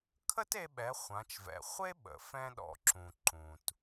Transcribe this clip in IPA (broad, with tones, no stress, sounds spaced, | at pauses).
kʰ ə˥ t e˧ ɓ ɛ˩˧ χʷ ã˩˧ t͡ʃ v ɛ̰˩ χʷ e˥ ɓ ə̰˩ f ɛ̃˧ ɗ ɔ̰˩ ǁ ũ˩ ǃ ũ˩ t